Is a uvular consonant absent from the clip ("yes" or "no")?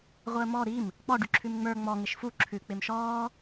no